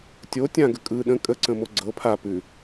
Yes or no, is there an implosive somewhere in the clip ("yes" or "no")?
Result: yes